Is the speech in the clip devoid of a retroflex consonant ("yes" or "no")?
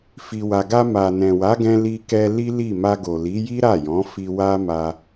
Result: yes